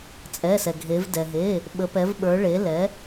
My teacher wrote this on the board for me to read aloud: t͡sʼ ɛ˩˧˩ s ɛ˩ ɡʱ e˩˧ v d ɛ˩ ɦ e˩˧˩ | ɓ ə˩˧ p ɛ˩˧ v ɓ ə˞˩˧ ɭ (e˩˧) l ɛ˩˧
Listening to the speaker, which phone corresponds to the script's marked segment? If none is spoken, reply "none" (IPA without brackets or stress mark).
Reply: e˩˧